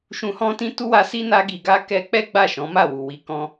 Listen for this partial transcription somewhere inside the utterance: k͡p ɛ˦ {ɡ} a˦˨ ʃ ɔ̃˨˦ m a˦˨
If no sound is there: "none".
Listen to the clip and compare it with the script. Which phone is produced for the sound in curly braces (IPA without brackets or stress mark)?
ɡ͡b